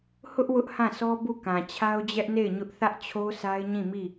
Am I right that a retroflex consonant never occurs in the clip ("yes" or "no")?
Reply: yes